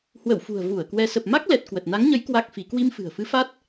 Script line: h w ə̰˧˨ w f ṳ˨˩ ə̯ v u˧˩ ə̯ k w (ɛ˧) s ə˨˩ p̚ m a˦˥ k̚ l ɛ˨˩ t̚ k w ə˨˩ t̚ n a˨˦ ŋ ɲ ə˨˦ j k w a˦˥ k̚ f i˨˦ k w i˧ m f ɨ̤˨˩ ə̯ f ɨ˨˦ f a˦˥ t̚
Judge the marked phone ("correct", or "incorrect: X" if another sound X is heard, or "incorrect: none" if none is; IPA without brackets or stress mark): correct